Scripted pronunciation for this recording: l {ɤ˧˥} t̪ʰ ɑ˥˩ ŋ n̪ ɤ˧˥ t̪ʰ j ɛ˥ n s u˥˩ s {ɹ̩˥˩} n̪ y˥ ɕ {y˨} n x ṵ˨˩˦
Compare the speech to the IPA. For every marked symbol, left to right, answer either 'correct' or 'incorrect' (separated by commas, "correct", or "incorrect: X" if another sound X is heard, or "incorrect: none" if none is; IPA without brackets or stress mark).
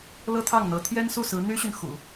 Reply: incorrect: ɤ˥, incorrect: ɹ̩˧˥, correct